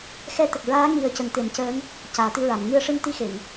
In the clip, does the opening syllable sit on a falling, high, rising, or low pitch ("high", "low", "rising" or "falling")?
rising